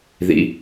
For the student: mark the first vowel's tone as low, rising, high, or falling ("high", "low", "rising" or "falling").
low